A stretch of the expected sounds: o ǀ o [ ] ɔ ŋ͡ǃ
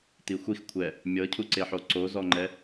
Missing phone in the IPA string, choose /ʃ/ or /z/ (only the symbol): z